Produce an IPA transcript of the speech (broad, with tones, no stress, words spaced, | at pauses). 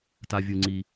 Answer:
ta˩vʲɯ˩ŋ͡ǀi˩